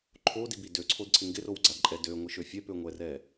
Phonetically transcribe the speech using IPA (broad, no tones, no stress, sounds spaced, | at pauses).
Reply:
ǃʰ o d i b i d ø ǀʰ o d ǀʰ ɪ ŋ ɡ ɪ r o w ɡ͡ǀ a d ǃʼ ɛ d ø ŋʷ i ʃ ø fʲ ɛ p ø ŋʷ ɛ r ɛ